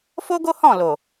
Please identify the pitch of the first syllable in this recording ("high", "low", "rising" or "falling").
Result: high